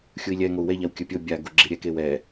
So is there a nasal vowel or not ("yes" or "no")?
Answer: no